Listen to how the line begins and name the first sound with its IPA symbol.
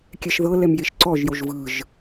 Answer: kʲ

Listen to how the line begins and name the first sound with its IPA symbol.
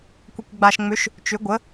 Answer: kʷ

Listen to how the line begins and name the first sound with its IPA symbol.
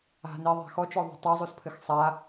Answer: a̤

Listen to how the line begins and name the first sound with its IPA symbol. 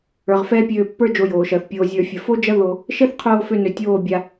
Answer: ə˞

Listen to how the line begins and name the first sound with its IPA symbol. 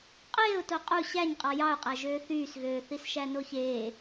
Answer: qʼ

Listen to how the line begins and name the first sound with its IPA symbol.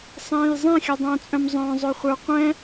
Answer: sˤ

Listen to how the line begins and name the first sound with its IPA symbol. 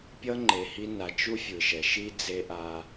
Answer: pʲ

